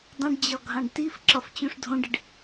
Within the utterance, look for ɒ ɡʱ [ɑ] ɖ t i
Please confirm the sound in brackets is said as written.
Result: no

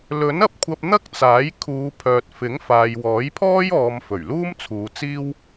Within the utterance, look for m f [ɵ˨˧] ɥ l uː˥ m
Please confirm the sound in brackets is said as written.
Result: no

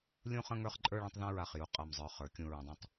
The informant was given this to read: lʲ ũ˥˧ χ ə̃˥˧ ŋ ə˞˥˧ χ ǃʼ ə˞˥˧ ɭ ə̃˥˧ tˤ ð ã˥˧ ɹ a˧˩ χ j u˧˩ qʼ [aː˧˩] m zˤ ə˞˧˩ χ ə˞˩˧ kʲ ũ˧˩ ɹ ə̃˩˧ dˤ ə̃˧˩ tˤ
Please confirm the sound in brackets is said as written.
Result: no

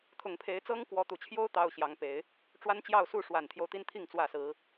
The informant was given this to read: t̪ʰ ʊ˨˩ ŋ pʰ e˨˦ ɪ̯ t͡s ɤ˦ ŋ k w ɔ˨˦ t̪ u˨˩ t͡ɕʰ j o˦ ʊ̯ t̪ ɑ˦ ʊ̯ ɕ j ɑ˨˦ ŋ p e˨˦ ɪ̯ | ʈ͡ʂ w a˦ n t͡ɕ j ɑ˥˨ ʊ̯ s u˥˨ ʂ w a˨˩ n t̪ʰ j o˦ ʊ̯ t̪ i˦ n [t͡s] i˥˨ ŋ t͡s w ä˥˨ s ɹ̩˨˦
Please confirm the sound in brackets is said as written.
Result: no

